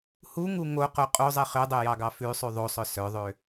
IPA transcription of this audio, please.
huŋu ŋoqo qʼozˤi χødˤøjɑɡɑ fʉsˤʉ ðˤosˤœ sœðˤø

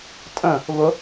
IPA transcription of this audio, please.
tʼə̃ | βʊ

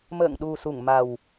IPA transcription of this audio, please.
mə̰ː˧˨ŋɗu˨˩su˧˩ŋ ma˨˩w

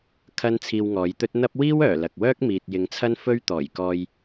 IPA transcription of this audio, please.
kʰɐ˥nt͡sʰiː˧wŋɔː˨˧jt̪ɵ˥t̚ n̪ɐ˥p̚ wiː˥wœː˨˩ lɐ˨k̚wœː˥k̚ miː˨t̚ jɪ˨˧ŋt͡sʰɐ˥nfɵ˥ɥ t̪ɔː˨˩jkɔː˧j

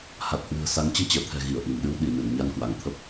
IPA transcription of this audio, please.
ha˨˩t̚hwɨ̤˨˩ə̯sa˨˦ŋ t͡ɕɨ˧t͡ɕəː˧˩t̪ʰɛ̤˨˩ ɣi˧˩ə̯ʔi˧˩m ɗɨ˧wɗi˧˩nɨ˧˩n ɲa˧nkwa˧˩ŋt̪ʰə˦˥p̚

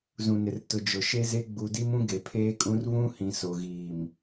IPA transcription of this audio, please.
zũ˨nɪ˨rtʊ˨ d͡ʒʊ˨ʃe˦ze˦ ɡ͡bu˨di˦mũ˦ ɡe˨pʰeː˦kʼũ˦r βũ˦hĩ˨ so˨ɣiː˨m

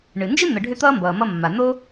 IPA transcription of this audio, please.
ɳɨ˩nd͡ʒɨ˥ n̪ə˨ɖʱʏ˦ t̪ʌː˥mbʌː˩mʌ˦mːa˩ n̪o˥

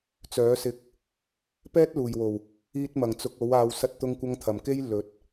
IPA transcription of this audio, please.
t͡sœː˨˥sɪ˧k̚ | pɛː˥t̚luː˨˩jwo˨˩w | iː˧t̚mɐ˨˩ŋ t͡sʊ˨˥k̚o˨˥w aː˨wsɐ˧t̚t̪ʊ˧ŋkʷɐ˧ŋ t̪ʰɐ˨˩mke˥j lɵ˨˥t̚

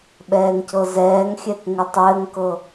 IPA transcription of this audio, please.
ɓɛːŋcɤzɛːŋxʲɛk ŋɘtˤɘːŋkɤ

